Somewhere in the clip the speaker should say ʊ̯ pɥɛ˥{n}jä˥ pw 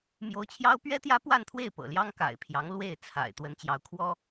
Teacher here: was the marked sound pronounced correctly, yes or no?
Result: no